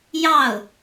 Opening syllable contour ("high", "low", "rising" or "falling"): falling